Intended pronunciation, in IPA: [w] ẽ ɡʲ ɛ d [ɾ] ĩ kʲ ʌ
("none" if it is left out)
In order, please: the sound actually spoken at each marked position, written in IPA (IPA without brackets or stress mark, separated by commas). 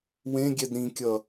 w, ɾ